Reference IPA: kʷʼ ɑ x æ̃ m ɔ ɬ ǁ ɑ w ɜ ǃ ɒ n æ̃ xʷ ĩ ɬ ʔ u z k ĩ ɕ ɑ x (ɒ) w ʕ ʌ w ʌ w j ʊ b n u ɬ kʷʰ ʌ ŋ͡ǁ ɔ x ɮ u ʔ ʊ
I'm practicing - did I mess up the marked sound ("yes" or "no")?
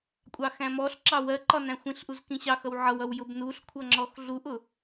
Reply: yes